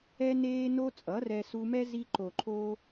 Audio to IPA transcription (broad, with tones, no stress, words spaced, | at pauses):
ɛ˦neː˦no˦ t͡sʼʌ˨˦rɛ˧su˧mɛ˦ zi˧ǃo˨ǃʰo˧